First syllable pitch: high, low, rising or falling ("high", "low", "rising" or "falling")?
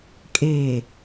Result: low